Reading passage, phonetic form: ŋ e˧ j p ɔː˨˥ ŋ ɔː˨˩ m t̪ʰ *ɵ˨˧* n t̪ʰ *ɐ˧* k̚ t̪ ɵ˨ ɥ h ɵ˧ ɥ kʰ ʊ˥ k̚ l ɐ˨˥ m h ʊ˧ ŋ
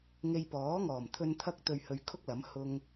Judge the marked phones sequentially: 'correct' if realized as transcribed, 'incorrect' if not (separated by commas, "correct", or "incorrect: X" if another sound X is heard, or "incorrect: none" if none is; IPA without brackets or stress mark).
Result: incorrect: ɵ˧, correct